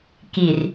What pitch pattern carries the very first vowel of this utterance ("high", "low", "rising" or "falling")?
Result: low